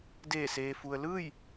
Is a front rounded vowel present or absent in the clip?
absent